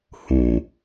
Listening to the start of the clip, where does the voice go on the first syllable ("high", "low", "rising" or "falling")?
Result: low